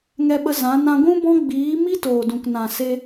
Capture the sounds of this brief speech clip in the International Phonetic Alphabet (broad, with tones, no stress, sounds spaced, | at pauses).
ŋ ɛ˧ ɓ ə˧ z ã˨˦ n ã˧ ɡʷ ũ˦ b ɔ̃˦ ɡ͡b iː˨˦ m i˦ t oː˨ d ũ˨ k n ã˨ s e˧